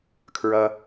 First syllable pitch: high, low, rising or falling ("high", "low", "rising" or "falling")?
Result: low